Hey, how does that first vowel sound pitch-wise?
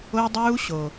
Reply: high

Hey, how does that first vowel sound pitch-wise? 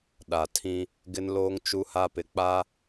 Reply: low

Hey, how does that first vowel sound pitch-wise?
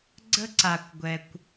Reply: high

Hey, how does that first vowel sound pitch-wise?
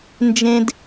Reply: high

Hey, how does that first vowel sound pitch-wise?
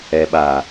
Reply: low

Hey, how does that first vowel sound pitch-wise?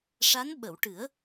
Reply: rising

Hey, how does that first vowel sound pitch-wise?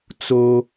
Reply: high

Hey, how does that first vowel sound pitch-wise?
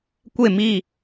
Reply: falling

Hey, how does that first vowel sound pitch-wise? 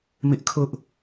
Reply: high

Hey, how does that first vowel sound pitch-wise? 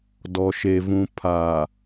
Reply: low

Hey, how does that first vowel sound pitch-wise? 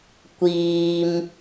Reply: low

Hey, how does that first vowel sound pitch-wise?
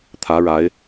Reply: rising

